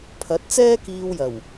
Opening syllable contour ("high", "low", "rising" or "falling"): rising